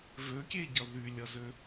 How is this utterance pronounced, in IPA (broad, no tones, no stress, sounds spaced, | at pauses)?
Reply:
v ø kʲ e ɟ ʌ ð y lʲ ʌ z ø